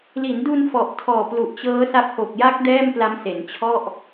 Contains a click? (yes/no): no